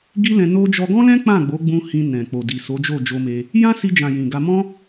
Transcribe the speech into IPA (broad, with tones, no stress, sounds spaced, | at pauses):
ɡ i˦ l ɛ̃˧ n o˧ d͡ʒ ɔ˧ ɡ ɔ̃˦ l ɛ̃˦ k͡p ã˦˨ ɡ͡b o˨˦ ɡ͡b ũ˧ h ĩ˧ n ɛ̃˨ k͡p o˨ d i˨ s o˨˦ d͡ʒ o˦˨ d͡ʒ o˧ m e˧ | j ã˦ s i˧ d͡ʒ ã˨ j ĩ˨ ɡ a˧ m ɔ̃˦